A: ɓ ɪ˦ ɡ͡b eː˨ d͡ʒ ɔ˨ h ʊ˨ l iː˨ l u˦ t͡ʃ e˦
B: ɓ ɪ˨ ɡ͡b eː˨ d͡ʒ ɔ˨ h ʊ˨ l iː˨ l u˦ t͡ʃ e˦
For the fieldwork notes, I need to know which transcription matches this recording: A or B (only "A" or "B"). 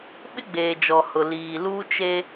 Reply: A